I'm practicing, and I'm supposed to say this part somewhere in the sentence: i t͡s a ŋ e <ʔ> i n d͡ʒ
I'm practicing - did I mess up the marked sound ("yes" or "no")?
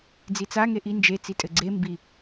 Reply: no